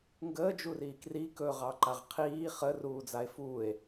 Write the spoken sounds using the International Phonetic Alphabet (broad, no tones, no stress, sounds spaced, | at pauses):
ŋ ɡ əː d͡ʒ u r iː k r i k ɵ ʁ ɑ ǃ a ʁ qʰ iː χ ə r uː d͡z a e̯ f uː e̯